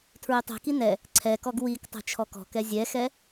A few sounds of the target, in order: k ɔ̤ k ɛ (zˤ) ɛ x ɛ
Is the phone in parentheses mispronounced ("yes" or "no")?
yes